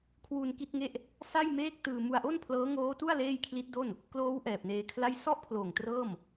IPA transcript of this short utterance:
kʰ w uː˧ n k i˥˩ t̚ ŋ e˥˩ ʔ | s a˥˩ j m eː˥˩ k̚ t ɯː˧ m u˧ a̯ ʔ o˥˩ n pʰ l ɤː˦˥ ŋ oː˦˥ t u˥˩ a̯ l eː˥˩ j kʰ l i˦˥ t̚ d o˥˩ n | k l oː˦˥ w ʔ ɛː˨˩ p̚ n eː˧ kʰ l a˥˩ j s ɔ˥˩ ʔ pʰ l oː˨˩ ŋ t r ɤː˥˩ m

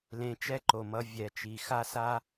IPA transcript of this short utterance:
l ẽ˧ t͡ʃ ɛ˦ ǃ o˨ m ʌ˨˦ vʲ ɛ˨ t͡ʃ i˨ x a˦ s a˦

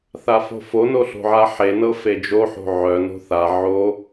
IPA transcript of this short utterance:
θ a f o̤ f o n o ɬ o̤ ʕ a ħ e n ɤ f e d͡ʒ o ħ o̤ ʕ œ n o̤ θ a ʕ o

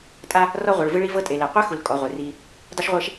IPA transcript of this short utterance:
tʼ a˦ | r ɔ˦ ʁʷ ɯ˨ ɭ v ɯ˦ ɭ i˦ v ɤ˦ tʼ e˨ l ɛ˨ qʷ ɛ˦ x u˨ l kʼ ɔ˨˦ ʁʷ e˨ r i˦ | dˤ o˦ ʃ ʁʷ e˦ ʃ

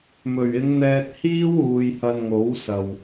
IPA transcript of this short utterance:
m ɵ˨˩ ɥ ɪ˨˧ ŋ n̪ ɛː˧ t̚ h iː˥ w uː˨ j h ɐ˧ n ŋ o˨˥ w s ɐ˨˩ w

